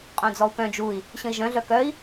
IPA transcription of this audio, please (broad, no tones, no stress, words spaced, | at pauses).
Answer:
qʼœ̃d͡zɔu̯kœ̃ d͡ʒui̯ | ɕə̃i̯ʒœ̃ ɮœkœi̯